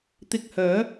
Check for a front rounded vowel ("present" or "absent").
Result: present